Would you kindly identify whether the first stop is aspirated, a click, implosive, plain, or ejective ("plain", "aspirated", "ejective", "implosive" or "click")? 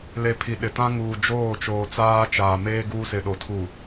aspirated